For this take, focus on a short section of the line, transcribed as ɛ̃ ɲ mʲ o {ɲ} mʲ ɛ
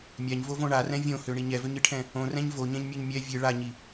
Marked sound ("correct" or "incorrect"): correct